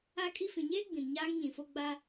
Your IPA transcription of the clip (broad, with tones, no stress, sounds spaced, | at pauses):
a˦ kʼ i˦ f ĩ˨ ɲ eː˦ ɡ͡b ĩ˨ n ɲ aː˦ ŋ ɲ ĩ˨ f o˦ ɡ͡b a˦